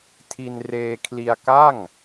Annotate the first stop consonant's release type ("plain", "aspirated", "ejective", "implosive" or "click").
aspirated